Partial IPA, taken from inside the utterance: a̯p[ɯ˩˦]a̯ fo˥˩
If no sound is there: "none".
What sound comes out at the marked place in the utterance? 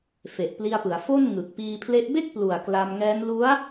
ɯ˩˦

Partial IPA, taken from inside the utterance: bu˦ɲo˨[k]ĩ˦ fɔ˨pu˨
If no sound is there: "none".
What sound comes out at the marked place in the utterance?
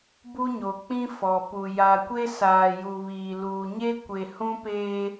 k͡p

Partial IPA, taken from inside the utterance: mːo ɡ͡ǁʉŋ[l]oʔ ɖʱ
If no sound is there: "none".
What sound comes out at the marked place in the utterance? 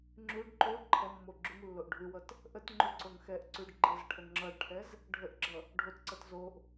lː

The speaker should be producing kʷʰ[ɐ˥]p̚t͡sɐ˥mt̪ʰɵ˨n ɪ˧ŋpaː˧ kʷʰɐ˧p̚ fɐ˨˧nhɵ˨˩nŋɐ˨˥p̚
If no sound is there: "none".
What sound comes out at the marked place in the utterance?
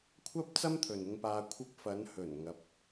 ɐ˥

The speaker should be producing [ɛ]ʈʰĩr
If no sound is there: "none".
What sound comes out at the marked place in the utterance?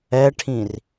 ɛ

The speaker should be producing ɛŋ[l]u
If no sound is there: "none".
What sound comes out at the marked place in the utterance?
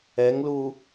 l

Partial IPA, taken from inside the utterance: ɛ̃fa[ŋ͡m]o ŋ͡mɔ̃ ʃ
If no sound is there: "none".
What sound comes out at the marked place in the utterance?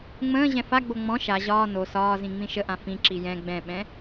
ɡ͡b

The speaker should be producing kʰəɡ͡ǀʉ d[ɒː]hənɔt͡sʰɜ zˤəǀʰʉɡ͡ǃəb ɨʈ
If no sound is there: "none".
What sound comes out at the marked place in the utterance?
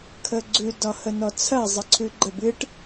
ɒ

